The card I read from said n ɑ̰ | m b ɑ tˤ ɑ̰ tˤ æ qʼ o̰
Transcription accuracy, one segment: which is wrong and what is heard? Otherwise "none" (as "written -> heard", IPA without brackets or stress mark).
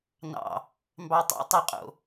none